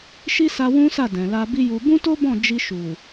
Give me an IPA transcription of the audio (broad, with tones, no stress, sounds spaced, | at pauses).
ʃ i˦ s a˧ w ũ˦ s a˦˨ d ɛ̃˨ l a˧ b i˦ j u˧ b ũ˦ t o˦ b ɔ̃˦˨ d͡ʒ i˧ ʃ u˨